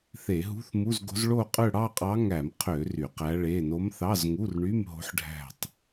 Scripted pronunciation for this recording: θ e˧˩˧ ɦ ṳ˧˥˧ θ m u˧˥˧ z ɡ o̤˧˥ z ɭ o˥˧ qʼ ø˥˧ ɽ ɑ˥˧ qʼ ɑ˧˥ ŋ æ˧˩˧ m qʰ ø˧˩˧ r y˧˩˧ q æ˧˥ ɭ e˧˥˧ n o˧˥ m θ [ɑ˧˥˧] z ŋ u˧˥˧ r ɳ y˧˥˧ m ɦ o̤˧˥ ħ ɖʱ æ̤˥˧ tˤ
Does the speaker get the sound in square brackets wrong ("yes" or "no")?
no